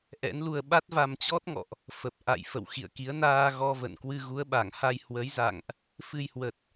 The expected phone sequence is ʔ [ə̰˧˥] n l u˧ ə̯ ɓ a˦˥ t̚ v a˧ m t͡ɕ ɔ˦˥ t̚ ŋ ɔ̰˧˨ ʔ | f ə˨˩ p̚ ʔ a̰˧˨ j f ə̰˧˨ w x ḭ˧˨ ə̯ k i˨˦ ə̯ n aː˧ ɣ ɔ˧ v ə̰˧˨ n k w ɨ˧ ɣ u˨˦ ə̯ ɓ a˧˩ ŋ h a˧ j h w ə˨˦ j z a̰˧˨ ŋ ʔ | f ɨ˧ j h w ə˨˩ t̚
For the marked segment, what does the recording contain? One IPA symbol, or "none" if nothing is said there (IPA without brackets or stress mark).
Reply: ɛ̰˧˥